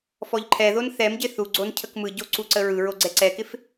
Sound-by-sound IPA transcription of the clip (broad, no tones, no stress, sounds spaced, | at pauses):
f ɔ ʎ ǃʰ ɛ ð o n θ ɛ m ɟ ɪ θ u ɡ͡ǀ o n cʰ ə k m ɯ ɟ o ǀ u ǀ ə ɹ ɯ ɹ o ɡ͡ǀ ɛ ǀ ɛ k ɪ f